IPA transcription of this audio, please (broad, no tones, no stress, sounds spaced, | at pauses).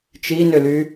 t͡ʃ i n ʏ l y